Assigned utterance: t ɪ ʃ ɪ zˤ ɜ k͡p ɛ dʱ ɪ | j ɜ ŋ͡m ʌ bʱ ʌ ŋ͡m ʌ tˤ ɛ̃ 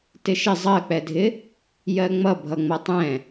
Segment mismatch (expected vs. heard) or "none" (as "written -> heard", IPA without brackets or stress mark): none